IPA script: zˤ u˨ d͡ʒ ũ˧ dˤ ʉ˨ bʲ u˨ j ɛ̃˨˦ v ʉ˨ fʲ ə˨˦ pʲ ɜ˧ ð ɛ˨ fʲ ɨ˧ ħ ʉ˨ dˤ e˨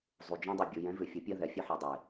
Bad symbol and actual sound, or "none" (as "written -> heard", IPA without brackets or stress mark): none